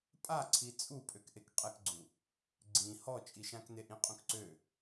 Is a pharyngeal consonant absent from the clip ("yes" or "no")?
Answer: yes